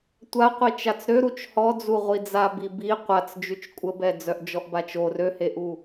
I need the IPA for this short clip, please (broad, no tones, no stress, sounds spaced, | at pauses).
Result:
tʷ a qʷ i t͡ʃ a t͡s ɾ ø ɾ u t͡ʃ h ɔ d͡z u ʁʷ i d͡z a b i b i qʷ a t͡s d͡ʒ y t͡ʃ kʷʼ ə b ɛ d͡z œ ʔ d͡ʒ ɔ ʔ b a t͡ʃ o r ø h e ʔ u